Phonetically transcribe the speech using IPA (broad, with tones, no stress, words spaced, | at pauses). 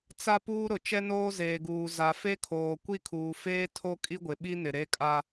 t͡sa˦ puː˦ɾʊ˨ t͡ʃɛ˦noː˦zeː˨ɡuː˨ za˨fe˦kʰoː˨ kʷi˦˨kʰuː˨feː˦ tʰo˦kʼi˦ɡʷɪ˨ ɓi˦nɪ˨ ɾe˦kʼa˦